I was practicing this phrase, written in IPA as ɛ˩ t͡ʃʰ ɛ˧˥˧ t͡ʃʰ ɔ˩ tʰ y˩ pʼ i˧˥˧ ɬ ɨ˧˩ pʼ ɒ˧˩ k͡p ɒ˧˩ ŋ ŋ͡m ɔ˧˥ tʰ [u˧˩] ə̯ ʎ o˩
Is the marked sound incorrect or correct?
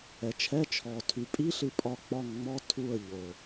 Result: correct